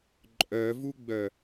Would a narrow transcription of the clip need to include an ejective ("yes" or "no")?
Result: yes